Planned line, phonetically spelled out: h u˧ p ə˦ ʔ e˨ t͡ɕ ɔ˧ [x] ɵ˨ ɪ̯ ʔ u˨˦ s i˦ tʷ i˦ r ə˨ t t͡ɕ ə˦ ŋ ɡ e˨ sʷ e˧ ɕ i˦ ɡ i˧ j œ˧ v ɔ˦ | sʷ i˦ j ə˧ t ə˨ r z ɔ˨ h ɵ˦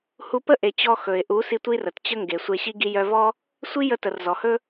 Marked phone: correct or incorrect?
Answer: correct